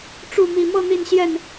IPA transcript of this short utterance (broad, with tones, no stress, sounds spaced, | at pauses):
ʈ͡ʂ u˥˨ m i˨˩ m ɤ˥˨ n̪ i˥˨ n ɕ j ɛ˥˨ n